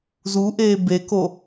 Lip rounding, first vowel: rounded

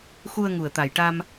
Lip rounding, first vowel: rounded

